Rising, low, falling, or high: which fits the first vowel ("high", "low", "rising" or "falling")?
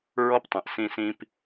high